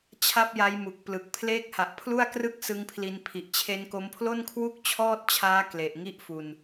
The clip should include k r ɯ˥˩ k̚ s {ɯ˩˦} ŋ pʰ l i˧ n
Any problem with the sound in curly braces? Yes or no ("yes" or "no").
yes